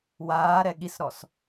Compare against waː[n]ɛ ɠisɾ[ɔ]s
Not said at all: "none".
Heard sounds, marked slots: ɾ, ɔ

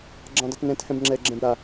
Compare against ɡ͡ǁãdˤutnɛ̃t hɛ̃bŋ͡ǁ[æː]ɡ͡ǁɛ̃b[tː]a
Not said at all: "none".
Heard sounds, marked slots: ɛː, ɾ

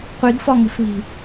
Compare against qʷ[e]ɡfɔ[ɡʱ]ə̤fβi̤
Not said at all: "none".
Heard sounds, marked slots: i, ŋ

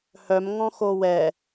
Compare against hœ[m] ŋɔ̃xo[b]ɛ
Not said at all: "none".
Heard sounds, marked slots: m, w

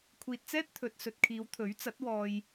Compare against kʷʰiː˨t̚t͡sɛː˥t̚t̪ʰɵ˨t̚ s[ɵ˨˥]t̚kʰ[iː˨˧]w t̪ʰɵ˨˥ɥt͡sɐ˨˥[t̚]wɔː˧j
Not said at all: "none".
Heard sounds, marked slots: ɵ˨, iː˨˧, t̚

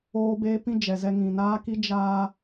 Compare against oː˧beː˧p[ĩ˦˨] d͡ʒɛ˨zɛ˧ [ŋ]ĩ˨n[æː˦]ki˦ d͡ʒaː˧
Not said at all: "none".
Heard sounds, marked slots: ĩ˦˨, ŋ, aː˦

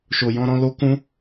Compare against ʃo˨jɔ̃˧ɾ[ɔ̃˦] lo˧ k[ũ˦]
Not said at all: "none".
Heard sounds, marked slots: ɔ̃˧, ũ˧

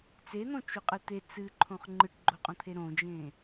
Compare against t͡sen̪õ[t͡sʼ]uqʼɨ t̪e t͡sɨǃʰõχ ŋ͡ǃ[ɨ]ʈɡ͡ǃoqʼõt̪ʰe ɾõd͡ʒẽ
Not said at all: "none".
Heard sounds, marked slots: t͡ʃ, ɨ

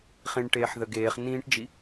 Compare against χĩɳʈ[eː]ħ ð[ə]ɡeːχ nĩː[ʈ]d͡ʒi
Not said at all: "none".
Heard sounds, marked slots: eː, ə, ʈ

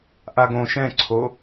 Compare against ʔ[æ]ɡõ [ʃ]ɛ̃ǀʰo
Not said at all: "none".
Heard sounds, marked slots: a, ʃ

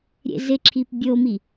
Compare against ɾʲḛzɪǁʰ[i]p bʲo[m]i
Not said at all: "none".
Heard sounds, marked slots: i, m

